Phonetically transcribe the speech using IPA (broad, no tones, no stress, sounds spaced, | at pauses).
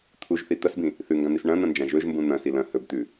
t̪ʰ u ʒ θ i t̪ ɐ s b ĩ | θ ʉ ŋ ɡ ã n̪ i s ɳ ɐ̃ n̪ ɐ̃ n d͡ʒ ã ʒ ɵ ʒ m b ũ n̪ ɐ̃ s i l ɐ̃ h ɵ b t̪ ʉ